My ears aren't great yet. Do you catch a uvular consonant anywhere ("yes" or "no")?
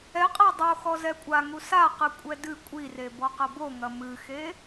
yes